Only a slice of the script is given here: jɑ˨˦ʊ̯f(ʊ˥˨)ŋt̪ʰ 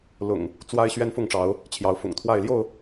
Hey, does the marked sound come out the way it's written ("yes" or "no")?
no